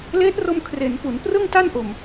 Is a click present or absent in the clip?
absent